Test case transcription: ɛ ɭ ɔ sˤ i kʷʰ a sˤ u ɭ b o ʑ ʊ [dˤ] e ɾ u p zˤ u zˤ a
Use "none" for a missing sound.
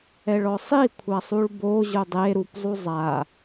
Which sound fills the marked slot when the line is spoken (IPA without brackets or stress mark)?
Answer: dˤ